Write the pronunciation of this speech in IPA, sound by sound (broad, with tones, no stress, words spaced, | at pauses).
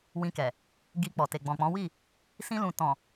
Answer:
wĩ˧kɛ˨ | ɡi˧k͡pɔ˨te˨ ɡ͡bɔ̃˨k͡pɔ̃˨˦wi˦˨ | sĩ˧lũ˨ tɔ̃˨